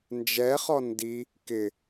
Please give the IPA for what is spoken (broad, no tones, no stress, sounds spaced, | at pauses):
n d͡ʒ ɛ χ ɔ n d i | k ɪ